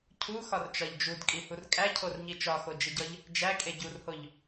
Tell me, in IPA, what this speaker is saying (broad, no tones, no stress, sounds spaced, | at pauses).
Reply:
cʰ u x ɒ r t͡ʃ ɒ ʎ d͡ʒ u d kʼ i h u r kʼ æ cʰ o r ɲ i t͡ʃ ɒ x o d͡ʒ i ɟ ɒ ʎ | d͡ʒ æ kʼ e ɟ u r h o ʎ